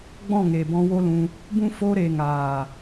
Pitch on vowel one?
falling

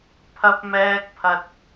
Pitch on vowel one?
high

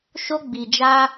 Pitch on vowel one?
high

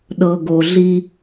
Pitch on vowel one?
low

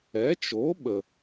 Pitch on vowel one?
rising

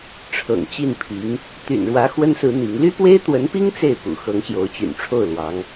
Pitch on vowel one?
low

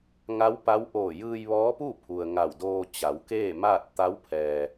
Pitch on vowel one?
rising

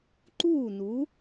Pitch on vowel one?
falling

